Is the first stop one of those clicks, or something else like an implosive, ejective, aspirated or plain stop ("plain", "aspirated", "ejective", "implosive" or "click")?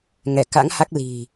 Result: plain